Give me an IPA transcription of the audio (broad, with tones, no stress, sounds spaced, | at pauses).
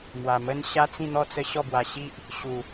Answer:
m w a˨˩ m ə˦ n ɕ a˦ t͡s ĩ˥˧ n̪ ɔ˥˧ t͡s ə˦ ɕ ɔ˥˧ b w a˧ ɕ i˦ ʔ | ɕ u˨˩